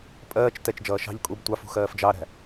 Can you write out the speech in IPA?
pʼɜːt͡ʃ tɛt͡ʃd͡ʒʌː ʃɑ̤ʎ kʼub tʷɑfṳ xɜːfd͡ʒɑɾæ̤

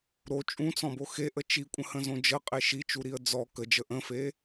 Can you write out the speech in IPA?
ɾo t͡ʃʼũt͡sɔ̃bo xeʔə t͡ʃikʷʼə̃hə̃zõ d͡ʒəqʼe ʃit͡ʃuɾiə̯ d͡zɔ kəd͡ʒə ʔə̃fe

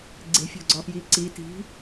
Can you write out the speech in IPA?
ɡ͡ǀe̤fʲo̤ ɡ͡ǀɒfjiǀi ti̤

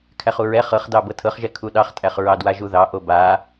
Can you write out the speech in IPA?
kʰæχuɹɛ χɤχdɑ bɤtʰɤχʒɛ kʰuɗɑχtʼæχ ɹɑdwaʒuðɑ ʔoba

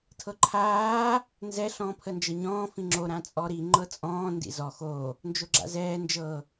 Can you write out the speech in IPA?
tʰɤǃʰaː | nzɛ ɬɔ̃ːpʰənd͡ʒɤɲɔ̃ː fĩŋ͡ǁo ɾãt͡sʼɔɾi ŋ͡ǃɤt͡sʼɔ̃ː ndḭzɔ xo | nd͡ʒoɡ͡ǁa̰zɛː nd͡ʒɤ

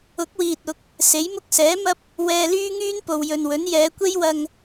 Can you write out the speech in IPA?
ʊ˨˥k̚wiː˨t̚ ʊ˨˥k̚ | se˨˥jmʊ˥k̚ sɛː˨˥mɐ˥p̚ | wɛː˧lyː˥ŋyː˥npo˨w jɵ˨nwɵ˨˥n jɛː˨˧kʷe˥jwɐ˧ŋ

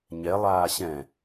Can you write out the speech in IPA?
ɲɛlˠaː ɕɛ̃

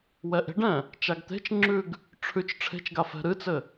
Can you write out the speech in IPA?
wɛʔe̤ɖɛ̃ | t͡ʃaɡt̪e̤t͡ʃŋ͡ǁʉɡ | ʈ͡ʂʰʉt͡ʃ ʈ͡ʂʰe̤t͡ʃɡa fɛ̤ɾɨt͡sɘ

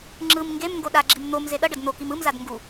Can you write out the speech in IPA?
ŋ͡ǁɯm ŋɡemŋɡo ɗaɡ͡ǁim n̪om zeɗʌɖʌd n̪okim ɯmzad ŋɡu

